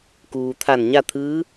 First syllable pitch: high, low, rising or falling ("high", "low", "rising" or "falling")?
low